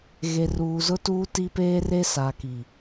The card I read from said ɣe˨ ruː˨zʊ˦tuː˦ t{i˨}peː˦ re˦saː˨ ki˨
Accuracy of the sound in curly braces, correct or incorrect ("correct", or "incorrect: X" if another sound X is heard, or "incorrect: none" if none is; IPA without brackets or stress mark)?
incorrect: i˦